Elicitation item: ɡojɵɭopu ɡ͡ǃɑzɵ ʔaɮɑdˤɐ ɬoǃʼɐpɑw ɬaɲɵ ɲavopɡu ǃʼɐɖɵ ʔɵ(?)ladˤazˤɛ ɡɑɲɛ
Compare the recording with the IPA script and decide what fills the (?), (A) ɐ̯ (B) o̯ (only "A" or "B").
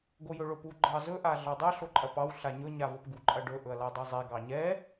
A